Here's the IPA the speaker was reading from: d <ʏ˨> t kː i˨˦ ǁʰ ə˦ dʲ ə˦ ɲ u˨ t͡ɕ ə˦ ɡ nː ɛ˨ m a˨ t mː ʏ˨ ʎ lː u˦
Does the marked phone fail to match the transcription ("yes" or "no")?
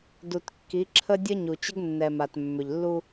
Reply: yes